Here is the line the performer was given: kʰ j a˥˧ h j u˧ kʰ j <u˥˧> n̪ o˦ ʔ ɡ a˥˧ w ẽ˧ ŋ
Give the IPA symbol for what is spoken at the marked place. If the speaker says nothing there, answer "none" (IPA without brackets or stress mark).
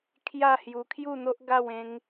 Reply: u˥˧